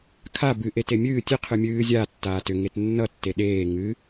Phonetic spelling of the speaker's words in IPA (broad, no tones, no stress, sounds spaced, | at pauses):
kʰ a b ɨ ʔ e t e mʲ ɨː tʲ ɨ qʰ ɨ mʲ ɨː zʲ a tː aː t ʏ ŋ e t nː ʌ tː e ɗ eː ŋ ɨ